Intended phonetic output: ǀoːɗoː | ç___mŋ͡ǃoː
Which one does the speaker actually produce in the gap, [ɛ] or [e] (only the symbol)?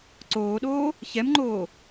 ɛ